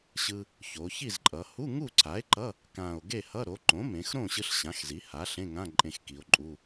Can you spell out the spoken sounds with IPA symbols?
ɕ ɯ˧ | ç o˩˧ ç i˥˨ z ǃʼ ʌ˩˧ h u˧˥˧ ŋ u˥˨ ǀʰ a˩˥ e̯ ǃ ʌ˧˥˧ | k ã˨˩ o̯ ɡ e˥˨ h ʌ˧˥˧ ɾ o˩˥ ǃ õ˩˥ m ẽ˩˧ x ɾ õ˥˨ ɕ ɯ˧ ɬ ɕ ã˩˥ x z i˩˥ h a˩˥ ɬ ẽ˧˥˧ ŋ ã˧˥˧ ǃʼ ẽ˧ x k i˩˧ o̯ ǃʼ u˧˥˧

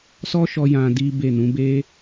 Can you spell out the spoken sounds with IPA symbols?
s ɔ˦ ʃ ɔ˧ j ã˧ d i˦ b e˦˨ n ũ˨˦ b e˦

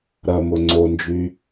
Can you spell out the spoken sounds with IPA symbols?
ɾ ɐ m ʊ ŋ͡ǀ o n d͡ʒ y

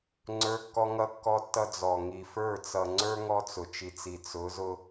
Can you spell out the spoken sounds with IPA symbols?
ŋ͡ǀ ə˞˦ kː ɔ˦ ŋ ʌ˦ kː ɔ˦ tː ʌ˦ d͡z ɔ˨ ŋ i˨ f ə˞˦˨ t͡s ʌ˨ ŋ͡ǀ ə˞˦ ŋ ɔ˦ t͡s ʊ˨ t͡ʃ i˨ t͡s i˨ t͡s ʊ˨˦ z ʊ˦

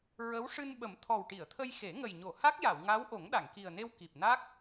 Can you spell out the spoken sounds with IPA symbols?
ɹ ə˧˥ w ʂ ɨ˧ n ɓ ə˨˩˦ m t̪ʰ ɔ˨˩ w ʈ i˨˩˨ ə̯ t̪ʰ ə˧ j x e˨˩˦ ŋ ə˨˩ j ɲ o˨˩˨ h a˦˥ k̚ j a˨˩˨ w ŋ a˧˥ w ʔ o˨˩˦ ŋ ɗ a˨˩˨ ŋ k i˨˩ ə̯ n e˧ w k i˨˩ p̚ n a˦˥ k̚

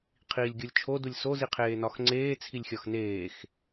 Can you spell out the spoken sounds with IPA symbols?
qʰ iː lʲ ɡʲ o lʲ t͡ʃʰ o d u lʲ s o z i qʰ eː n ɒ x ŋ͡ǀ eː t͡sʰ i lʲ xʲ ɒ x n eː x

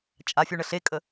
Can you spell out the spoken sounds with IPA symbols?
t͡ʃʼ a fʲ u ɳ ə ɬ e kʼ ə

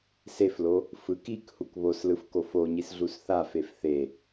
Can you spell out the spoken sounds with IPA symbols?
s e f l o | f ɯ k i k h u k β o s l ɯ f k o f o ɲ i s ɮ u s θ a f e f θ e

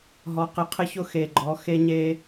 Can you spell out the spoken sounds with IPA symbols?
ɦ ɔ˨˦ q ɪ˨˦ qʰ ɪ˦ ç ʊ˦ x e˨˩ ɡ͡ǃ ɔ˨˦ x e˦ ɲ e˦

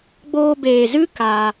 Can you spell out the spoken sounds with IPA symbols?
ɡ͡b oː˧ b eː˨ z ɨ˦ k aː˧

